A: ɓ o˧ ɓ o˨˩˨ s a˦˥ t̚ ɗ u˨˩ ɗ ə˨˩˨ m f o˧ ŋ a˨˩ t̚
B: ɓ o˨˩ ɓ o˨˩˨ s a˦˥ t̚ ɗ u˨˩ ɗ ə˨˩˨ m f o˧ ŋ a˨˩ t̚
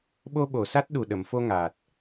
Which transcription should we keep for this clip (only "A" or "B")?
A